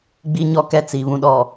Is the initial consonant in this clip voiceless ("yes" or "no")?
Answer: no